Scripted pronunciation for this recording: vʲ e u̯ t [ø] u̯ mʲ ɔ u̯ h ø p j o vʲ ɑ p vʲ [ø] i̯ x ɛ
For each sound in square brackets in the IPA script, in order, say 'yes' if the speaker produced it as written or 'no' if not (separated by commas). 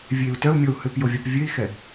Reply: no, yes